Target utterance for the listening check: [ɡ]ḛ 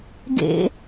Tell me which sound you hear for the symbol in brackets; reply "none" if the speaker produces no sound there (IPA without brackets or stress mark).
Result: ɡ